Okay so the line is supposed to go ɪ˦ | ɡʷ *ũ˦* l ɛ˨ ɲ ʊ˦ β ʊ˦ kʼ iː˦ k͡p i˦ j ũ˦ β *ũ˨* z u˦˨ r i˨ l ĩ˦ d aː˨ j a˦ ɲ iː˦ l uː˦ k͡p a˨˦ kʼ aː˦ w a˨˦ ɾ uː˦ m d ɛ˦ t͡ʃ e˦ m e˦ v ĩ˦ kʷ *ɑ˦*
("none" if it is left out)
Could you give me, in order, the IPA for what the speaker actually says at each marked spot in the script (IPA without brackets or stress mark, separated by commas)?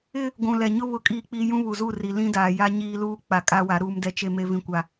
ũ˨, u˨, a˦